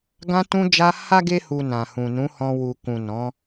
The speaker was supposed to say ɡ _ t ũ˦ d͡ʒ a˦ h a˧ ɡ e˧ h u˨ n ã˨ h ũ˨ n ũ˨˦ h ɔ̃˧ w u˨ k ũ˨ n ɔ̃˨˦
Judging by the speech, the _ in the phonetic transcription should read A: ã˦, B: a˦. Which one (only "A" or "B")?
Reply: A